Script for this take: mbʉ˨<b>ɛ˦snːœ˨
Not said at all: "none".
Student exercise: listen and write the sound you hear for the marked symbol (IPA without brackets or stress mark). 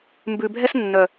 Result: bʱ